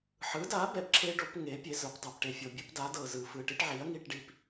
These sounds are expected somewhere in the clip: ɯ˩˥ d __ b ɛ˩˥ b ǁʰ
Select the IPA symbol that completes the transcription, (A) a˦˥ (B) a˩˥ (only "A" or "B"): B